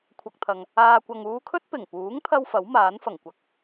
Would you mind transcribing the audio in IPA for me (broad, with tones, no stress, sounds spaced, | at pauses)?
kʷʰ ɐ˨ k̚ t̪ʰ ɐ˨ ŋ | aː˨ kʷ ɐ˨ ŋ uː˧ kʰ ɵ˥ t̚ p ɪ˨˩ ŋ p uː˨˥ ŋ t̪ʰ ɐ˧ w f ɐ˨˥ w m aː˨˥ n f ɐ˨˩ ŋ kʷ ɐ˨ k̚